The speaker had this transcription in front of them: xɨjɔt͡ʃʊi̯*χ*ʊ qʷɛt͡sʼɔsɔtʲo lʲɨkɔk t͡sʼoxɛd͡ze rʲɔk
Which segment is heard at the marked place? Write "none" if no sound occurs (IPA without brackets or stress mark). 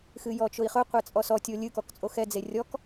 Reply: χ